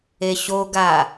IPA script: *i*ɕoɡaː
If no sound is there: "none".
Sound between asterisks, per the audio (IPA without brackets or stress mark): e